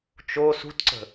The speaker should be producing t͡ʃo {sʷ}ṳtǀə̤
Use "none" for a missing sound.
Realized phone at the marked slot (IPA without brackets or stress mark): s